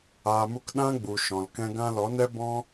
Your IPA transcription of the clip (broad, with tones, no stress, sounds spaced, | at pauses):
aː˧ m u˦ k ɗ ã˦ ɡ͡b u˨ ʃ ɔ̃˨ l k ɛ̃˦ ɡ ã˦ l ɔ˨˦ n ɛ˦ b ɔ̃˦